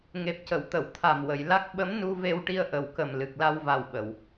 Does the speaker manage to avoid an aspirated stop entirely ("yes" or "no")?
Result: no